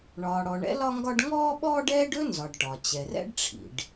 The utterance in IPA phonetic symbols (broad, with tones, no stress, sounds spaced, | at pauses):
ɳ ɒː˩ ɽ ɔ˩ ɳ ɛ̰˥ l ɒ˥ ŋ ɡ ɒ˥ ɖ ŋ ɔː˥ ɓ ɔː˥ ɖ ɛː˥ ɖ ɵ˥ n z ɒ˩ ɖ ʈ ɒ˩ t͡ɕ ɛ˩ r ɛ̰˥ ɖ ʈ͡ʂʰ ḭ˩ ɖ